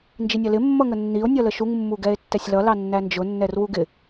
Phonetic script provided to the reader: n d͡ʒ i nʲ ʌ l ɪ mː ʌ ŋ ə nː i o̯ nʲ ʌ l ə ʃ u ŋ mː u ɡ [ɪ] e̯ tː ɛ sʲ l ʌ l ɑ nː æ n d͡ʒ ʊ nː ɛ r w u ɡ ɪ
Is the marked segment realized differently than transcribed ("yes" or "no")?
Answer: yes